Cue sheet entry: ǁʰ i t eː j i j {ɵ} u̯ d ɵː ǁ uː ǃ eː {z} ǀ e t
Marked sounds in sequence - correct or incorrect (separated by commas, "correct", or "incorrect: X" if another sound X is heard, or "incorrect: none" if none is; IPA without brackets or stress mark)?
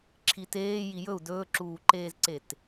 correct, correct